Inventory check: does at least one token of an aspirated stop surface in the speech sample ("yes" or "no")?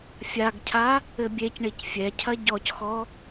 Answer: yes